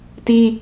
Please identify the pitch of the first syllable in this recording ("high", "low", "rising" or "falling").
high